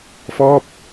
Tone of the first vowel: falling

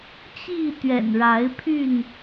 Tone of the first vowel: falling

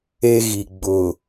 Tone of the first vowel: high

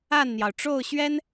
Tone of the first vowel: falling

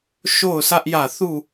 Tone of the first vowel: falling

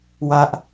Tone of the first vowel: high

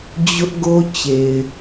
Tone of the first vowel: high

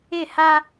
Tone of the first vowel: falling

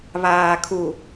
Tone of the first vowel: low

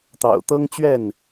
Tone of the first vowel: low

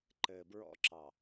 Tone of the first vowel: low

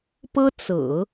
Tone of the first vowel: high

